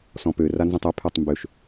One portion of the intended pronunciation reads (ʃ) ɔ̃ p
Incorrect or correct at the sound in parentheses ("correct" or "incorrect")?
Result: incorrect